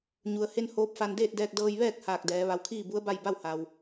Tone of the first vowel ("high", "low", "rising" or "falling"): low